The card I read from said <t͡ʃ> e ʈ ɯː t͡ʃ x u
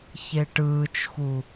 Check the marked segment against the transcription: incorrect: ç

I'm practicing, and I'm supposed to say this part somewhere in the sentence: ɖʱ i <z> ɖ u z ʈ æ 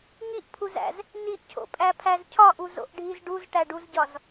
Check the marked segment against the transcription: correct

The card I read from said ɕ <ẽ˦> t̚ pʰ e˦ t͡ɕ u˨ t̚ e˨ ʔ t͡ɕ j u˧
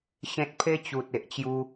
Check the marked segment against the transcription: correct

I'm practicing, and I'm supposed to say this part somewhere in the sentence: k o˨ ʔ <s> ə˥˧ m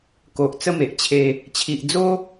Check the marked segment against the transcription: incorrect: t͡s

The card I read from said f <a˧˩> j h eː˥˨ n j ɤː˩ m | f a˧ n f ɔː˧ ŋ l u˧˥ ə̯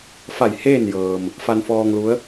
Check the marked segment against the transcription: correct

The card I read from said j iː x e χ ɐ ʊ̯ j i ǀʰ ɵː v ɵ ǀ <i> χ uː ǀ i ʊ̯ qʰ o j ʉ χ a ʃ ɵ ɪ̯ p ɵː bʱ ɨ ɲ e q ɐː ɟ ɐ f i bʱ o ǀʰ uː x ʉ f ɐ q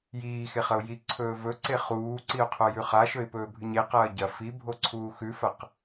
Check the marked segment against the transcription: incorrect: e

